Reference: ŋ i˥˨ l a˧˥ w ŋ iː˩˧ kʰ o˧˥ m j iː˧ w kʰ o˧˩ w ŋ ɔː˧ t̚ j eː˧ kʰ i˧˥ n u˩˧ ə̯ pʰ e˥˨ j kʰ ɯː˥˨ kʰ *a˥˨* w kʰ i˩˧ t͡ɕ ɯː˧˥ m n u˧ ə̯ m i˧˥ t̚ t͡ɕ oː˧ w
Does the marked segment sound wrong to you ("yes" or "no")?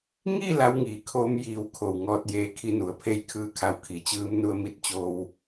yes